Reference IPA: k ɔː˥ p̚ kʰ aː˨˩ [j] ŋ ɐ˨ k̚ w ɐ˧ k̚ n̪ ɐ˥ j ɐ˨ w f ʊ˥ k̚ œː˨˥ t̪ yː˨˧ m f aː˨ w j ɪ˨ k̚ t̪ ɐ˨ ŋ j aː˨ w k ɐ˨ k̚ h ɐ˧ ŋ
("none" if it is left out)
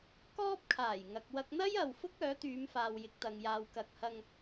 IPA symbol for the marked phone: j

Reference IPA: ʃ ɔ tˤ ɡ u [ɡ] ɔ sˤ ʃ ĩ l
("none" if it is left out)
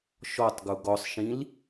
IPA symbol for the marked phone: ɡ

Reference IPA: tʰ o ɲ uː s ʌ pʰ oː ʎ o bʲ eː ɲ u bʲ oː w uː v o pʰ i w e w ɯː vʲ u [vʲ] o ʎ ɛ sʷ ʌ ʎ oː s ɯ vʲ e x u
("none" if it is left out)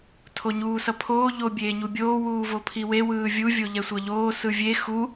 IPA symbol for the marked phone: vʲ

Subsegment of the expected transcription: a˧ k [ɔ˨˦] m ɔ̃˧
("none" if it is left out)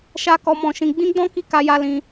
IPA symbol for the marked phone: ɔ˧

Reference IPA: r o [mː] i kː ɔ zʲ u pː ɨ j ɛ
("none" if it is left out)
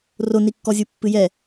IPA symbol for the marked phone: n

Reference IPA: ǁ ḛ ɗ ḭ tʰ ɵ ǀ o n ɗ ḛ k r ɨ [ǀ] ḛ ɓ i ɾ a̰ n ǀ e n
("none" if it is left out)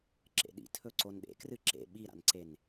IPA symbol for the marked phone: ǁ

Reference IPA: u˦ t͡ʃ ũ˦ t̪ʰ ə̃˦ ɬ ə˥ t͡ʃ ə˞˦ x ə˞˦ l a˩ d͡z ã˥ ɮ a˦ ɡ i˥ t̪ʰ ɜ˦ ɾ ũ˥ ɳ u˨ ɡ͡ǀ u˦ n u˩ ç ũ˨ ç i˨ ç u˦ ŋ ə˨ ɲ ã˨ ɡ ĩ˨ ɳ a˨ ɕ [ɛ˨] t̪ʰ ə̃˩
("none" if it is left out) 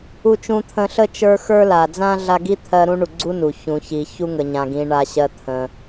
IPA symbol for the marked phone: ɜ˨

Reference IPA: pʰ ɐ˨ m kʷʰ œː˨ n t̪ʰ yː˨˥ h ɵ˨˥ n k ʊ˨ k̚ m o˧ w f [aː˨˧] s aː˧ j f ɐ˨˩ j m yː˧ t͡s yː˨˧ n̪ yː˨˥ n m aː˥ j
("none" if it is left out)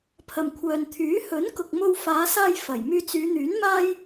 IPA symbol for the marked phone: aː˨˧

